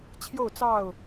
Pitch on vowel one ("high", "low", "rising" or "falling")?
falling